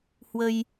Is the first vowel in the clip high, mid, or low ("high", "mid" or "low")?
mid